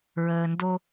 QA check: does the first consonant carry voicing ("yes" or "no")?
yes